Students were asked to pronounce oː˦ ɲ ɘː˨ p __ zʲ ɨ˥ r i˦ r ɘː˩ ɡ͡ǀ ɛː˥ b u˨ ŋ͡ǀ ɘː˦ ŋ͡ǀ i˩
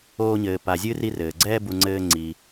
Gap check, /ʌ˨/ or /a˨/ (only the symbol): a˨